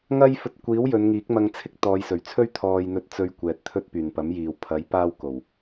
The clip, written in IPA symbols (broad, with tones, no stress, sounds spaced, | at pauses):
ŋ ɐ˥ j f ɵ˧ t̚ kʷ iː˨˥ w j ɵ˨˧ n ŋ iː˨˥ k̚ m ɐ˧ ŋ t͡sʰ ɪ˥ k̚ t̪ ɔː˨˧ j s ɵ˨˩ ɥ t͡sʰ ɵ˥ ɥ t̪ʰ ɔː˧ j n̪ ɵ˧ t̚ t͡s ɵ˧ ɥ kʷ ɛː˨ t̚ t̪ʰ ɵ˥ t̚ p yː˨˩ n p ɐ˨˥ m j iː˨ w pʰ ɐ˨˥ j p aː˧ w k o˨˩ w